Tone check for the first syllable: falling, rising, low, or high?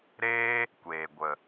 high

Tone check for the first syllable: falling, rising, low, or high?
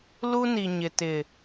high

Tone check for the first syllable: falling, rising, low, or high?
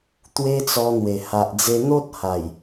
high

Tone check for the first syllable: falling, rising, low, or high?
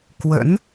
rising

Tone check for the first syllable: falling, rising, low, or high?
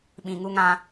low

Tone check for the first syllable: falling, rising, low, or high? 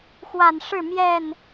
low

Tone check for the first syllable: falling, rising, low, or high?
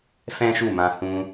high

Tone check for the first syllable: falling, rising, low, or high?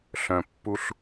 low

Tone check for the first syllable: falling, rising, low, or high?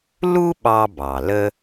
high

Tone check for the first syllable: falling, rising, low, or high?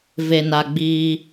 low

